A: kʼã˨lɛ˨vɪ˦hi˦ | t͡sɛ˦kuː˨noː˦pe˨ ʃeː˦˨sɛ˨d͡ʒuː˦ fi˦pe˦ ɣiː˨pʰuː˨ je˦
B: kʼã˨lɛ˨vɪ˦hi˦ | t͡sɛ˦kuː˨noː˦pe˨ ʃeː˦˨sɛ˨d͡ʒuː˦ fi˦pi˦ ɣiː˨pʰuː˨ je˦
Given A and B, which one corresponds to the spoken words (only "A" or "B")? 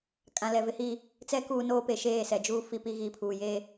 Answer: B